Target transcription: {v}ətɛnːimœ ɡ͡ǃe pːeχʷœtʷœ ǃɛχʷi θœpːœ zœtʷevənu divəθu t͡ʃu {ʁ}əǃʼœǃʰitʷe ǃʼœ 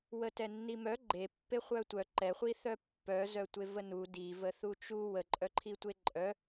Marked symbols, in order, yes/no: no, no

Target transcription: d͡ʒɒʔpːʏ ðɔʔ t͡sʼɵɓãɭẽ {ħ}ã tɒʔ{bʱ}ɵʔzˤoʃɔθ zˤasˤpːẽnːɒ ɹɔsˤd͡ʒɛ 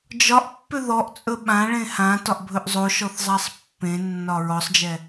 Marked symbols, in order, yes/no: no, yes

